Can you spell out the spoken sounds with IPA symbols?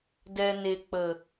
d ɛ˨ n e˨ k͡p ə˨

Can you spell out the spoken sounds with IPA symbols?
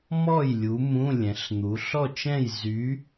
m ɔ˥˨ j lʲ u˨˥ m ũ˧˥˧ lʲ ɛ̃˩˧ ɬ n̪ u˩˧ ɬ ɔ˥˨ t͡ʃ ɛ̃˥˨ j z y˨˥

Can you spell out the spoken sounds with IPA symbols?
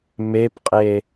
m e p qʼ e

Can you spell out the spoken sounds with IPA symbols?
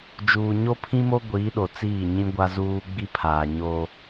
d͡ʒ uː˨ ɲ o˦ pʰ ĩ˦ m o˦ ɡʷ i˨˦ ɗ o˨ t͡s iː˦˨ ɲ ĩ˦ ɡʷ a˦ z uː˦ ɡ͡b i˦ pʰ aː˨ ɲ oː˦

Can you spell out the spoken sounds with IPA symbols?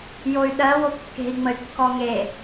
j o y̯ ɗ ɜ w o kː e̤ i̯ ŋ͡m ə y̯ kː ɔ ŋ e

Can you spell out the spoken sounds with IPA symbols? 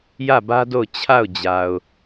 j ä˦˨ b ä˦ d o˦˨ ʊ̯ t͡ɕʰ a˦˨ ʊ̯ d͡ʑ a˨ ʊ̯

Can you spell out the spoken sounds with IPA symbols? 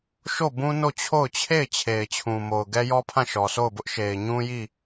ʃ o˦˨ b ũ˦ n o˦˨ t͡ɕʰ o˦˨ ʊ̯ t͡ɕʰ e˦˨ ɪ̯ t͡ɕʰ e˨ ɪ̯ t͡ɕʰ ũ˨ m o˨ ʊ̯ ɡ ɛ˦ j ɔ˦ pʰ ã˦˨ ʃ ɔ˨ sʰ o˦˨ ʊ̯ b ʊ˦ ʔ ʃ e˨ ɪ̯ ɲ ũ˦ j i˦˨

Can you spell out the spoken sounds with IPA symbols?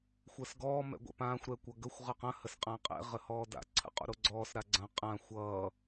xʷ əː s ɡ ɔː m ɛ̰ ɡʷ ɛ̰ p ãː xʷ ɾ ɛ kʷ ʌ ɡ ə xʷ ʁ ʌ q ɐ̃ h ə s qʼ ã qʼ ɛ̰ ʁ ə h ɔː d a̰ ǀʰ ə̰ qʼ o̰ ɾ o ɡ͡ǀ ɔː s ɾ a ɡ͡ǀ ɐ̃ qʼ ã xʷ ʌː

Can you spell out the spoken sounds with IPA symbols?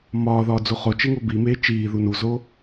m ɒː ð ɒː d͡z u χ o t͡ʃ e ŋ o b i m eː t͡ʃ iː ð u n u z o

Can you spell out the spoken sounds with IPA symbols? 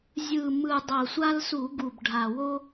zʲ ɯ˨˩ m ɯ˨˩ dˤ ɤ˨˩ sʷ a˦ l s u˧˩˧ ɡ u˨˩ b ɖʱ a˨˩ w o˦

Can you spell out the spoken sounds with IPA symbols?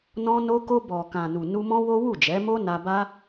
n ɔ̃˧ n o˧ k o˧ b ɔ˨ k ã˨ n u˨ n u˧ m ɔ̃˦ w o˦ w u˦˨ d͡ʒ ɛ˨˦ m o˦ n a˧ b a˦

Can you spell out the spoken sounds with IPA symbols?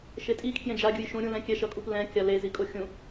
ʃ e tʼ i kʰ j ẽ d͡ʒ a ɡʲ ɯ j ʃ ũ ɾʲ ũ l ɛ̃ kʲ ɛ ʃ ʌ kʼ u p l ɛ̃ kʲ a l e z i kʼ o xʲ ũ

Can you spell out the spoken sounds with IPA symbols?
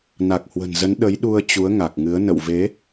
n a˨˩ k̚ h w ə̤˨˩ n z ə˨˦ n ɗ ə˨˦ j ɗ u˧ ə̯ t͡ɕ u˨˦ ə̯ ŋ a˨˩ k̚ ŋ ɨ˨˦ ə̯ n ə̰˧˨ w v e˨˦

